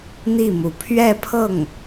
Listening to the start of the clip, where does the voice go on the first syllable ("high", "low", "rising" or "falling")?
falling